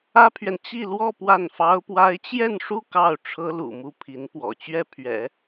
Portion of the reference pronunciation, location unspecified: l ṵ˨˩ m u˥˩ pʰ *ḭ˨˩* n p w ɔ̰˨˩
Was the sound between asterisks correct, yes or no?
no